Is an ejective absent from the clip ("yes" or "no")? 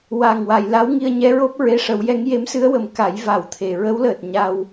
yes